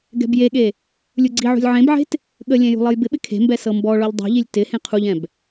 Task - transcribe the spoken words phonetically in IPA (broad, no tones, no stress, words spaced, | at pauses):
ɡɛ̤bjeɠe | lʲuɡ͡ǀiʕṳlʲ ʕẽbʕe̤t | ɠəlʲɛ̃ jṳlˠɤjbɪɓɪ kʰe̤mbɛ sɤmbɔɭɔʎ dˤṳʎilʲ tɪ hẽqʰuʎɛ̃b